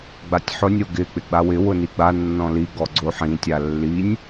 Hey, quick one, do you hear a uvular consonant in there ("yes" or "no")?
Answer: no